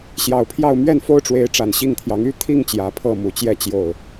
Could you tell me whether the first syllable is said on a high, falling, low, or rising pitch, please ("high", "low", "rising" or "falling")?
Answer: low